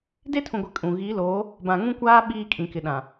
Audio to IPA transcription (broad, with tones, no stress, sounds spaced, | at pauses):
d e˦ tʰ ũ˨ ɡʷ ɪ˨ kʼ ũ˨ ɣ i˨˦ l oː˨˦ | b ã˨ ŋ ũ˦ kʷ aː˦ ɓ iː˦ kʼ ĩ˨ k ɪ˨ ɗ ã˨